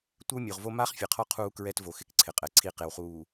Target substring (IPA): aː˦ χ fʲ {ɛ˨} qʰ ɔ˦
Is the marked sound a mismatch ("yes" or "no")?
no